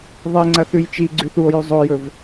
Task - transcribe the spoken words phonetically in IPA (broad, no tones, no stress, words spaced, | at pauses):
ðˤeŋ͡ǀɐ θʉjt͡ʃi ɡ͡ǀʉθuo̯jʉ zˤojɵv